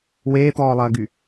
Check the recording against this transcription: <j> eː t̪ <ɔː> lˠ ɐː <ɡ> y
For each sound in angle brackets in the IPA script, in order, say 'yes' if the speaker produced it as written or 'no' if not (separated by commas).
no, yes, yes